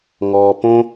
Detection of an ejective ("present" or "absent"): absent